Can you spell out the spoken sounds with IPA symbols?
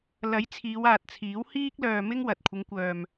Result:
lɐ˨˥jt͡sʰiː˨˧waː˨t̚t͡sʰiː˨˥w hiː˥k̚lœː˧ mɪ˥ŋwɐ˨t̚ kʷʰɪ˨˧ŋkʷœː˨m

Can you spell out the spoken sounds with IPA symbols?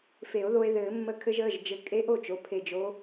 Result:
fe˨˩˦o̯ðo˧e̯ ðɘː˨˩˦mːə˧˥ kʰɘ˧ʒəː˩˧˩ʒd͡ʒɘ˨˩˦ kʼe˧˥ʔo˥˩t͡ʃo˩˧˩ pʰe˧˩d͡ʒo˧˥

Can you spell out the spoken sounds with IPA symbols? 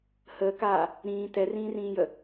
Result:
həːkaː | ɾĩː tɛrĩːrĩːjə

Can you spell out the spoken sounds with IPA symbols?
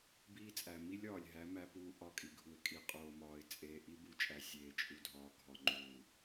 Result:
biː˦t͡sʼæ˨ mi˦lʲɒː˨lʲɦæ˨˦ mæ˦puː˦ ʔɒ˦˨kʼi˨ɡʱu˨ɪ̯ kʼi˨qʼoː˨mɒː˨ɪ̯ t͡sʼeː˨ʔi˦bu˨t͡ʃʼæ˨ sʲeː˨t͡ʃʼu˨dʱɒː˨ ɡʱɒ˨ŋ͡ǃuː˨

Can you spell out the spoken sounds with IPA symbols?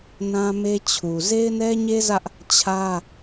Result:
nã˦me˦t͡ɕʰu˨ ze˦ɪ̯nɛ˦ɲe˦zä˦ʔ | t͡ɕʰä˦

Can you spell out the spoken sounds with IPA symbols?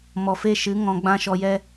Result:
mɔ˨fe˧ʃɨ˨˦ ŋɔ̃˧ ɡ͡bã˦ʃɔ˧jɛ˦

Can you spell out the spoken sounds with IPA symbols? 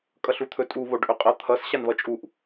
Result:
kʼʌɬut̪ʰɵtʼu βoɖʔɵqʼʌ t̪ʰʌs ɕanβʌt͡ʃʼuʔ

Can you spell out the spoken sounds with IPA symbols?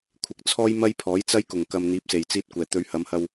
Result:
kʷʰɪ˨k̚t͡sʰɔː˥j mɐ˥jpʰɔː˨˥jt͡sɐ˥j kʊ˨˩ŋkɐ˨m n̪iː˨˥p̚se˨˩jt͡siː˧t̚kʷɛː˨˩ t̪ɵ˨˧ɥhɐ˨˧mhɐ˧w

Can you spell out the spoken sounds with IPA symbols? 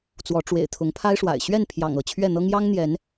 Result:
t͡swɔ˨˦ʈ͡ʂwḛ˨˩ɪ̯ t̪ʰʊ˨˦ŋpʰa˦ɪ̯ʂwa̰˨˩ɪ̯ ɕɥɛ˥˨npʰjɑ̰˨˩ŋ ɤ˥˨t͡ɕʰɥɛ˥˨n̪ɤ˦ŋ jɑ˦ŋn̪jɛ˨˦n

